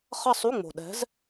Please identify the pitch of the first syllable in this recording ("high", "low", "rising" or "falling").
falling